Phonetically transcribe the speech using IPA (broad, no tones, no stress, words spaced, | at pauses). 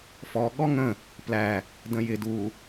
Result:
fɔ ɠɔŋə̃ | plæ | də̃jɪ du